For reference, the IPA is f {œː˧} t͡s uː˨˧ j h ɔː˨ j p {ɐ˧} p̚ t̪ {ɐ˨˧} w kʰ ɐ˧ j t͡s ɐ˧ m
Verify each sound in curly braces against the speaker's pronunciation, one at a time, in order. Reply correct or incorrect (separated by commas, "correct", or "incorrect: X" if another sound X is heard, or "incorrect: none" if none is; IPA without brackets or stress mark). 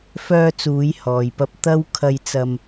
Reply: correct, correct, incorrect: ɐ˥